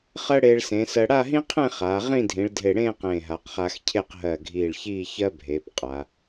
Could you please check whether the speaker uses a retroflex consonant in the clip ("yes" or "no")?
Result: yes